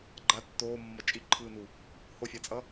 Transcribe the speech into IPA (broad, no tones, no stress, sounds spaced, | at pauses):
ɡ͡ǃ a tː oː mː ʌ t͡ʃʼ i ǃʰ ɯː n u | h o fʲ a t͡sʼ ʌ